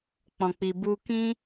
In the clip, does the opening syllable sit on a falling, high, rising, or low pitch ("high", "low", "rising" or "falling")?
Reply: low